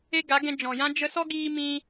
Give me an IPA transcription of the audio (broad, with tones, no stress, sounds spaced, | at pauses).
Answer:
e˦ ɡ a˨˦ ɡ ɛ̃˧ d͡ʒ ɔ̃˨ j ã˦ d͡ʒ ə˧ s ɔ˦ ɡ iː˧ m ĩ˧